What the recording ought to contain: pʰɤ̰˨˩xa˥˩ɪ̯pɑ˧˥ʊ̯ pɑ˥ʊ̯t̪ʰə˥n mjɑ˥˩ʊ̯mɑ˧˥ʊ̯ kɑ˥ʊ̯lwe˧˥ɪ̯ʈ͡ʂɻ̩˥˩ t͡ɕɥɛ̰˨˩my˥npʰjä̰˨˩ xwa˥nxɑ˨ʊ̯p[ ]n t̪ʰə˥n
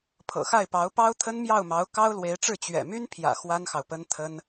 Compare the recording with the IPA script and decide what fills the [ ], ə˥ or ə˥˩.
ə˥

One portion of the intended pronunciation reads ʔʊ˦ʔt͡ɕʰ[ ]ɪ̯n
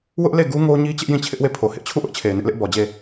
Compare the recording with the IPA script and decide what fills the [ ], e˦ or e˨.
e˨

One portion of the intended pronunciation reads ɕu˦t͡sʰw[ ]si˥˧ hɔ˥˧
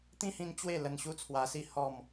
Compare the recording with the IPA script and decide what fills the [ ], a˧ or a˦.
a˧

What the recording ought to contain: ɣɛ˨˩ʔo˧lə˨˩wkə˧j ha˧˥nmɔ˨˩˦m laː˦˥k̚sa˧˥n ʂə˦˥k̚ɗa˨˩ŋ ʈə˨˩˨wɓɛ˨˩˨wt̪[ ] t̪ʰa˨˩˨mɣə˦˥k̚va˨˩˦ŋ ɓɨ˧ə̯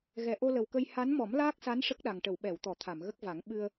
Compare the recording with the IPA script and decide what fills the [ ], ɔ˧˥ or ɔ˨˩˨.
ɔ˨˩˨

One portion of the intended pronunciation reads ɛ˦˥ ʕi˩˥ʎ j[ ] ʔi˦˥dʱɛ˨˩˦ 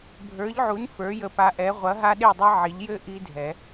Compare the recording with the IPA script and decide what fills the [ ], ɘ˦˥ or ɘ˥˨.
ɘ˦˥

